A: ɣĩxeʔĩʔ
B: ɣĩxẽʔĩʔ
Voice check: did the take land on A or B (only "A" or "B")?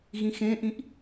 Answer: B